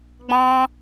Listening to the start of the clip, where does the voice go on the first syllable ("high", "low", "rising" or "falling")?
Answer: high